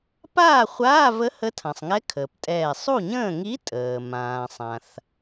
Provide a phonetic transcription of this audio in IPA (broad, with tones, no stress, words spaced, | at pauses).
paː˥˨χʷaː˧˥˧və˧˥ hə˧˥tʰã˩sˤŋɛ˧˥ kʰəː˩ptʼɛː˧˩ sˤu˥˨ɲə̃ː˥˨ ŋi˧˥tʼəː˩ mãː˩sˤã˩θ